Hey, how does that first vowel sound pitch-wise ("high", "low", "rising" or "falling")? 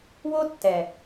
high